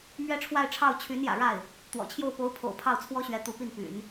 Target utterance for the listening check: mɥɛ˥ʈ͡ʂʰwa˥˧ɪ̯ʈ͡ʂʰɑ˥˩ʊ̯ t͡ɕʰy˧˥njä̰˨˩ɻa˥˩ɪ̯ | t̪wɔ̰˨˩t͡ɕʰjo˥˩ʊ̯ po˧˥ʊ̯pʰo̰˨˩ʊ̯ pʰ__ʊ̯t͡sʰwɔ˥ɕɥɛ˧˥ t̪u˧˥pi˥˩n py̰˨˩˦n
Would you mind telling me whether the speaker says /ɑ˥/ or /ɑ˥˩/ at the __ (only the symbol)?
ɑ˥˩